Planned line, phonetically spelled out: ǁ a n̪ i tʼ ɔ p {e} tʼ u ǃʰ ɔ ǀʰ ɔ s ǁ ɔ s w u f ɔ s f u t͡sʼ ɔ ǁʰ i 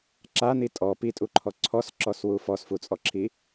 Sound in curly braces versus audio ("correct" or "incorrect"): incorrect